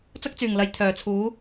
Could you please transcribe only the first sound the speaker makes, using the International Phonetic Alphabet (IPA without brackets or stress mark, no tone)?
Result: t͡s